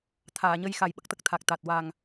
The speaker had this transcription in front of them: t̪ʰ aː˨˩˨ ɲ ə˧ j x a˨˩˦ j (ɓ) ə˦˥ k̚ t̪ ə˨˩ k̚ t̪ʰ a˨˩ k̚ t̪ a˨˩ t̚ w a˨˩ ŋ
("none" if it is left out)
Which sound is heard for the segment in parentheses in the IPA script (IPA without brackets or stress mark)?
ɓ